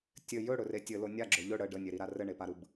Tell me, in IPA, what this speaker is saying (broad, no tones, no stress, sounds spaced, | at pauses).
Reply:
tʲ ɘ j ɵ ɽ ɵ r e tʲ ɘ l o nʲ a ɡ͡ǁ ɵ ʎ ɵ ɽ ə ɖ ə nʲ e ɾ i ɾ a r ɘ ɳ e p a ɾ ɯ b